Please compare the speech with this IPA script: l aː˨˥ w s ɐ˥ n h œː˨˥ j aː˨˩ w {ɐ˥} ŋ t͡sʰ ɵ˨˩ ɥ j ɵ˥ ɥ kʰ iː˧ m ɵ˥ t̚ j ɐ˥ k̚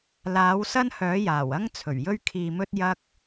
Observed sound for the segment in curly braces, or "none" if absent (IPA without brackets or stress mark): ɐ˥